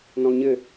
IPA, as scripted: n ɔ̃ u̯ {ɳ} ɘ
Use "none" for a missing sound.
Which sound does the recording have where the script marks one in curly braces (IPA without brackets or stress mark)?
ɲ